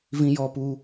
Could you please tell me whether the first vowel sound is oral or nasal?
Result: nasal